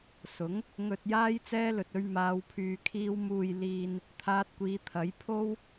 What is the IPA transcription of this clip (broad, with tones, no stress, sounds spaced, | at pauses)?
s ʊ˨˥ ŋ | ŋ ɵ˨ t̚ j aː˧ j t͡s ɛː˧ l ɵ˨ t̚ ɵ˧ ɥ m aː˨˧ w pʰ yː˨ kʰ iː˧ w m uː˨ j l iː˨ n | t̪ʰ aː˧ t̚ kʷ iː˨˧ t̪ʰ ɐ˨˥ j pʰ o˥ w